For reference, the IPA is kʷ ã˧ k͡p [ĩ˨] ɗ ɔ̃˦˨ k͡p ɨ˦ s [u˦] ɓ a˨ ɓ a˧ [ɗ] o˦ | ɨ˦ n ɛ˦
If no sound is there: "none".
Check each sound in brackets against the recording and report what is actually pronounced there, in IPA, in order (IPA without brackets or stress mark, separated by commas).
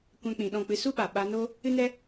ĩ˨, u˦, n